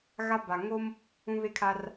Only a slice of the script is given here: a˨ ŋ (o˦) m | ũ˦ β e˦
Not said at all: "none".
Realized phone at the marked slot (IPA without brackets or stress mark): o˦